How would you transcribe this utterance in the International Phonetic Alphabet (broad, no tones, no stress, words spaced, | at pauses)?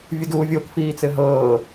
vʲuduːvʲokfiː t͡sɘɦɤː